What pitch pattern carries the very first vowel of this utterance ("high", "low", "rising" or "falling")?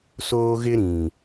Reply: high